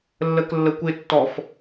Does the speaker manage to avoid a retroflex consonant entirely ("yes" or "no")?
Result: yes